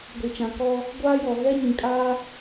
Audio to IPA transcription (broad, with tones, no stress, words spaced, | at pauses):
ɡʷi˨t͡ʃã˨kɔ˦ | ɡʷaː˦jɔ˨ ɣɛ˦ɲĩ˨kʼaː˦